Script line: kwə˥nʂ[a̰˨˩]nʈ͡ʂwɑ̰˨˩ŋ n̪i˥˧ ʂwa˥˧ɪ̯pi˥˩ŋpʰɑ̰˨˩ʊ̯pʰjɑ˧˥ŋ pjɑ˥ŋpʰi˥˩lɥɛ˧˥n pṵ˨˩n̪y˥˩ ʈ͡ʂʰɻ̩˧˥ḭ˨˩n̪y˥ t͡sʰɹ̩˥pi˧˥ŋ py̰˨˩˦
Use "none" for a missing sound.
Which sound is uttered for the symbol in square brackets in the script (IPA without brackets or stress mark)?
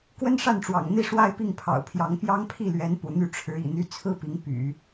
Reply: a˥˩